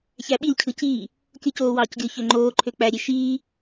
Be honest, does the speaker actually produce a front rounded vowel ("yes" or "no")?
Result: yes